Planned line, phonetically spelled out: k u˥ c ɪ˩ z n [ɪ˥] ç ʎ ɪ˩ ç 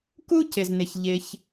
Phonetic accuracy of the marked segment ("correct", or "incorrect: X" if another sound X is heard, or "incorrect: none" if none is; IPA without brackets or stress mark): incorrect: ɪ˩